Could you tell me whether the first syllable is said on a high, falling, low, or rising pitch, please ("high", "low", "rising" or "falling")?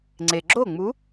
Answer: low